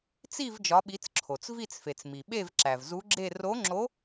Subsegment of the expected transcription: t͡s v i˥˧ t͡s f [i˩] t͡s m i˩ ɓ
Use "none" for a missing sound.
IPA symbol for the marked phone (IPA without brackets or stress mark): e˩